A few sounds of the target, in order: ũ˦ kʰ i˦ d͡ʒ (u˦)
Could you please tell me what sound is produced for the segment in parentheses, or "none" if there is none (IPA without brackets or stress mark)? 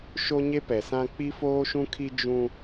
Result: ũ˦